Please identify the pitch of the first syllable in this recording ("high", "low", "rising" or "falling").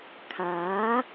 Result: rising